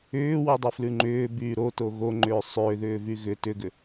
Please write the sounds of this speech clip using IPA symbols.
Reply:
ʏːwudˤy flʉŋ͡ǃʏːbyː ɾoto ɣoŋ͡ǃʏː sˤʏːðʏː vyɣʏ tʏɡʏ

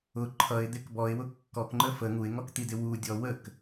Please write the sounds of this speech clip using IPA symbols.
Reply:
ʊ ǃʰʌɪ̯d̪ɪk bɔɪ̯wʊ kːɔkŋ͡ǃə fə ŋuɪ̯ŋɔkt̪idɪ wudʲɔ wək

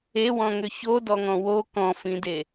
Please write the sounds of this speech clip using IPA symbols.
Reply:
ewɔ̃ŋʏ çodɔŋɔ̃ wo kɔ̃fĩde

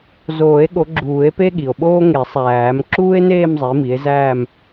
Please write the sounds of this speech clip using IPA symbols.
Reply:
zoː˨˩˦e̯ɠo˨˦ ɡ͡ǁuː˨˩˦e̯pe˥ɠi˩o̯ɓoː˥ ŋe˨˩˦sˤæː˨˩˦m ǁuː˥e̯neː˥˧mzˤi˨˦ mi˨˦e̯zæː˥˧m

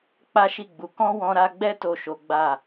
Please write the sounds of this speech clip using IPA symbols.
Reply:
k͡pa˦ʃi˦˨ɡ͡bu˨˦ kɔ̃˦wɔ̃˧ɾa˧ɡ͡bɛ˦ to˦˨ʃo˨˦ ɡ͡ba˦˨

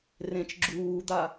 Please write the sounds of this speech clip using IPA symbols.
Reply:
rẽt͡ʃ ɡ͡ǁuːd̪a

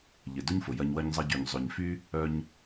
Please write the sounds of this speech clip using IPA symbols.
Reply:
ʎɪ˨dʊ˦ɲfʊ˨jɐ˧ɲ wɐ˧ɲzˤɐ˧ɟy˨ɲ zˤʏ˨ɲfy˦ | œ˧ɲ

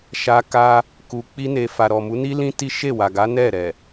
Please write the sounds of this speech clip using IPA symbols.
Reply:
ʃa˧ ka˧ | ku˧k͡pi˦ne˧ fa˨ɾɔ˨mu˨˦ni˦ lĩ˦ti˦ ʃe˦˨wa˨ɡa˨˦ nɛ˦˨ɾɛ˨

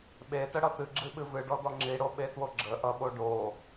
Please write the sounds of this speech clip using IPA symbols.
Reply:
ɓetəɽʌ t̪ɨɡ͡ǁɨɓɨ vɨɖɔdɔ ŋ͡ǁiɽoɓetwo ɡ͡ǁəʔʌɓo ɖo

